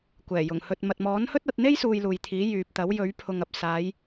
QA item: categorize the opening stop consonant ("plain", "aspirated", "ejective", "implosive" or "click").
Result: plain